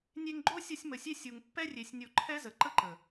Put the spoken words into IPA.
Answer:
nʲe˧ŋɡ͡ǃo˦sʲʌ˧sʲ mə˨sʲe˧ sʲu˨ŋ pːɛ˧rʲe˨sʲ nʲo˨ ǃʰɛ˦zə˨ ǃə˦ǃə˨

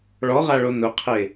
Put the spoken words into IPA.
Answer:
ɭɔʁaɭo nʊqʰe

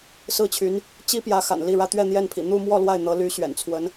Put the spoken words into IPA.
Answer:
sɹ̩˥˩t͡ɕʰy˧˥n | t͡ɕi˥pjä˧˥ xa̰˨˩nli˥˩ɻä˥ t̪ɥɛ˥˧n̪jɛ˥˩npʰḭ˨˩ n̪u˥˧mwɔ˥˧ lwa˥˩ɪ̯n̪ɤ˧˥ ly˧˥ɕɥɛ̰˨˩nt͡sʰwə˧˥n

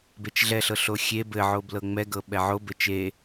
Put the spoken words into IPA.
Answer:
bet͡ʃɮɛɬɤ ɬoxʲe bɘʕoblɤ ŋ͡mɛɡɤ ɓɛʕo bɘt͡ʃe

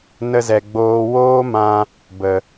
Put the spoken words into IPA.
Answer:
nə˧zɛ˨ɡ͡boː˧ woː˦mã˧ | bə˨

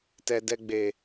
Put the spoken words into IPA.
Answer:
tɛ˧dɛ˧ ɡ͡be˨

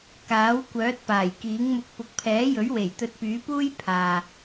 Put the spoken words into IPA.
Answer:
kaː˨˥w kʷœː˨˥t̚ paː˨˩jkiː˨˥ŋmʊ˧k̚ pʊ˨k̚pʰɛː˨˥jɵ˨˥ɥwe˨˩j t̪ɵ˧t̚pyː˨˥puː˥j pʰaː˨

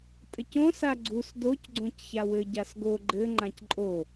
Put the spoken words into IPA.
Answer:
tʼɘcõ saɡ͡ǀus doc ɡ͡ǀõcçawɘ ɟasɡo ɡ͡ǃɘ ŋ͡ǃãcǃʼo

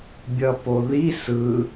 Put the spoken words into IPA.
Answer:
bʲʌpoði sɯ

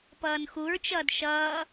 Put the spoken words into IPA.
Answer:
pʌːnxuɹt͡ʃʌːd ʃʌː

